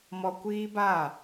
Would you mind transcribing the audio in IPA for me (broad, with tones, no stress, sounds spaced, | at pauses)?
m ɔ˦ kʷ iː˦ b a˦˨